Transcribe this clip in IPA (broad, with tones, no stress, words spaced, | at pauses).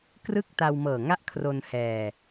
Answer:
krɯ˥˩k̚ta˧wmɤː˨˩ŋa˥˩ʔ kʰro˧nhɛː˧